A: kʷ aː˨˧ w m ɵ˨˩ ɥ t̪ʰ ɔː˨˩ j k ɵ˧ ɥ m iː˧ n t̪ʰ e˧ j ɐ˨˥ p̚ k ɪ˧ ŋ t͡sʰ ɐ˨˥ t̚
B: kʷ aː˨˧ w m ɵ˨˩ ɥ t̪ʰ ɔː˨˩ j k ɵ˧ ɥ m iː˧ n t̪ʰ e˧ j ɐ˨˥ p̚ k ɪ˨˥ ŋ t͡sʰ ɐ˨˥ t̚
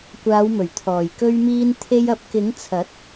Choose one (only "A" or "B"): B